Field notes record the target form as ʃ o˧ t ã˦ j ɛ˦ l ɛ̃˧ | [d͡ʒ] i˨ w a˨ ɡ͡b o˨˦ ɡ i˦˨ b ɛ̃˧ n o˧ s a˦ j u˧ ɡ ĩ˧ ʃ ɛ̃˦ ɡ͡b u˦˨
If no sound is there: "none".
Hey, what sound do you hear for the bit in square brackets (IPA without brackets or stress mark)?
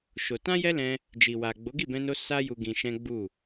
d͡ʒ